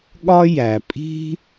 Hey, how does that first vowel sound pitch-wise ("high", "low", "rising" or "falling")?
high